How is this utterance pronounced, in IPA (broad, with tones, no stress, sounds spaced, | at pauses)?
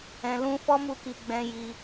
ɛ̃˧ l ũ˦ f ɔ˦ m u˧ k i˨ ɡ͡b ɛ̃˧ j i˧